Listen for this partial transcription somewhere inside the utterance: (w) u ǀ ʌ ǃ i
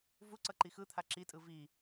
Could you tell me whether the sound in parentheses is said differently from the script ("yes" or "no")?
yes